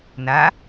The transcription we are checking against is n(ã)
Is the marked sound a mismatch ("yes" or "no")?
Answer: yes